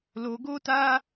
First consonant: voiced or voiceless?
voiced